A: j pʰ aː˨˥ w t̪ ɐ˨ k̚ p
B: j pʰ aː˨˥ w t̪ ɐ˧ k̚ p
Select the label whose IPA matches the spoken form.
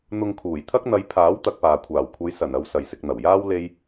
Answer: B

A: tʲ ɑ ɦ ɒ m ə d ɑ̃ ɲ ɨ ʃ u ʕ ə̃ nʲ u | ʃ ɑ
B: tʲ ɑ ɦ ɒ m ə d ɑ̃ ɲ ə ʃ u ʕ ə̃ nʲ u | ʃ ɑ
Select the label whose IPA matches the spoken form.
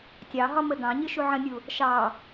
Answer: A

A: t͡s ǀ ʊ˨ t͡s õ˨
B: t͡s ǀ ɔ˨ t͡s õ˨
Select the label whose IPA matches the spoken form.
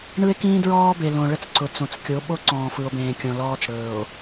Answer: A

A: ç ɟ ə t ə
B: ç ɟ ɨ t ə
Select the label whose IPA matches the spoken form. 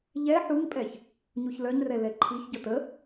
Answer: A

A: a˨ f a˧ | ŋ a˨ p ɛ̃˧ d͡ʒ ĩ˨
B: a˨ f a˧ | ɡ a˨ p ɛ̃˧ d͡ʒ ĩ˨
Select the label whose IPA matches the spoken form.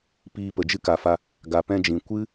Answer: B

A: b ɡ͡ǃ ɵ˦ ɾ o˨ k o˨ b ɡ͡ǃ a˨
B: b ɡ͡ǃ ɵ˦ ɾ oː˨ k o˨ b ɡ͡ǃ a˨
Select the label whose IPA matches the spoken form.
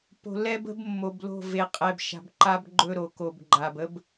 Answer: A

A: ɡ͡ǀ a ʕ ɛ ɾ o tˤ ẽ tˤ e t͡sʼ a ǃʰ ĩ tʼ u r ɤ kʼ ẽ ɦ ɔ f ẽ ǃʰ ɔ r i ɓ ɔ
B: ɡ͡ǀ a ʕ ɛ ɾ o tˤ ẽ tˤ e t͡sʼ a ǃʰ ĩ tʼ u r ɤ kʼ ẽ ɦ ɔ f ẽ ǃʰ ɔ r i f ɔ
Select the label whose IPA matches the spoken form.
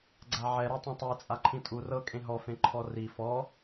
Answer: B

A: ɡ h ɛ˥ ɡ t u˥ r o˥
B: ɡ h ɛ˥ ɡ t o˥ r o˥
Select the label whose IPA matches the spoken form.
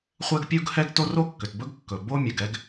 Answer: B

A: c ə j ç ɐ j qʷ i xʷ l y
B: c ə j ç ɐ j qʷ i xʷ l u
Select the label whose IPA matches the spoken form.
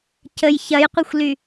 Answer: A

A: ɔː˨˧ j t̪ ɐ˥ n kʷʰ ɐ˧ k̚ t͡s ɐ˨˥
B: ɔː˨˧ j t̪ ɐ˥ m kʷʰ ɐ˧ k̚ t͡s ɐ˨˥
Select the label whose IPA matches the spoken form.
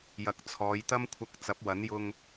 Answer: B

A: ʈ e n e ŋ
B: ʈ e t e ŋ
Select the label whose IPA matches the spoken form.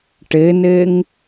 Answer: A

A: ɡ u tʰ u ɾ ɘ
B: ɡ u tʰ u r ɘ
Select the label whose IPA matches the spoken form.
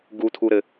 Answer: A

